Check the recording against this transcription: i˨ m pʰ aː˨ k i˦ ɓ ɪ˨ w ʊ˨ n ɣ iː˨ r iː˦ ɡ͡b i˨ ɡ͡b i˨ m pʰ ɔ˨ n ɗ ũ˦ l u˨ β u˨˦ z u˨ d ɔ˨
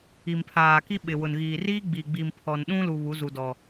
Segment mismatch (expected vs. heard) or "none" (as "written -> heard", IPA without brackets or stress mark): none